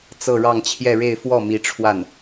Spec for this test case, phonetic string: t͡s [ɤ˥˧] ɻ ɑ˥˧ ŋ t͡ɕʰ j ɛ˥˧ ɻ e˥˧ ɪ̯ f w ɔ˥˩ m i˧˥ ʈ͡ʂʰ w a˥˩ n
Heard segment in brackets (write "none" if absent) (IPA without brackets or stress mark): ɤ˥˧